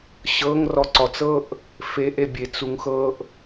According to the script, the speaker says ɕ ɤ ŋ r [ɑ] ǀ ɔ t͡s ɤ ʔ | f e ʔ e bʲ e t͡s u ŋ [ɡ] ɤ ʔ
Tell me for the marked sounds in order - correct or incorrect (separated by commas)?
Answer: incorrect, incorrect